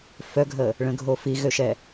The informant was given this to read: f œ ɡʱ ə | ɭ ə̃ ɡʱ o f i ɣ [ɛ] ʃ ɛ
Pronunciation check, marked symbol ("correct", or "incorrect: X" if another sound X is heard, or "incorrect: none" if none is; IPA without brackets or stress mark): incorrect: ø